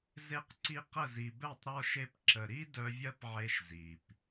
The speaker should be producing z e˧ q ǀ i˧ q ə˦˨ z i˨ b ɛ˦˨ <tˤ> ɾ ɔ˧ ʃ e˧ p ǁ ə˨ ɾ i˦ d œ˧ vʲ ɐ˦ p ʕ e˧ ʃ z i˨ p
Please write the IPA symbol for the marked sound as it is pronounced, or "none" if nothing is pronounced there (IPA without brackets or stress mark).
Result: tˤ